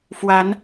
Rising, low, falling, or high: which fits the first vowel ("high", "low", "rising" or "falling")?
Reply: rising